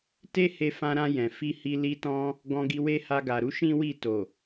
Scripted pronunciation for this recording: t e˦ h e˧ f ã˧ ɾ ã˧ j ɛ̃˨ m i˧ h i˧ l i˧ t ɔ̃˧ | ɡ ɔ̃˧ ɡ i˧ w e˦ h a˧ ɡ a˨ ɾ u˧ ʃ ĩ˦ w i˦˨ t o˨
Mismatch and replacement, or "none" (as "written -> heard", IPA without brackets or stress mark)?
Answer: m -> f